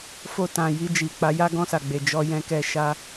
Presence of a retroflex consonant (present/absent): absent